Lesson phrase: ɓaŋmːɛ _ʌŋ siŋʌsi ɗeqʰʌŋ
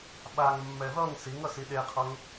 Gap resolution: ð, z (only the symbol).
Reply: ð